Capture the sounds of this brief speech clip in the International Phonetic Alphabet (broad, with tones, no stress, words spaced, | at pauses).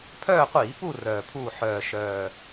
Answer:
pʰœː˦˨qʷiː˧˩˧ pu˦˨ rœː˨˩pʰuː˦˨ ħœː˨˩ʃœː˨˩